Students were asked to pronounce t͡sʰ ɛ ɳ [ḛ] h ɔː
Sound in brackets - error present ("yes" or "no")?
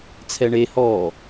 yes